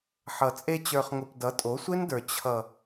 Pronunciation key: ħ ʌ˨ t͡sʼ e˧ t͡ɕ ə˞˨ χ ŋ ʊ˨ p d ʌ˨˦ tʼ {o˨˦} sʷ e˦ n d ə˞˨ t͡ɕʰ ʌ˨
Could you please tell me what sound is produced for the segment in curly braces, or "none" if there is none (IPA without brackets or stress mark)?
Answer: o˨˦